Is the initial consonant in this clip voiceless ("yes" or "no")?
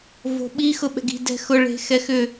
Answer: no